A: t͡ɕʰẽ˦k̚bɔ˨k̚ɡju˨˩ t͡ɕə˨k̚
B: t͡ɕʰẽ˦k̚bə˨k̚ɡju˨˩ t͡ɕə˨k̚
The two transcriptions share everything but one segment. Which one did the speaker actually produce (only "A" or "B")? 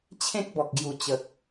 A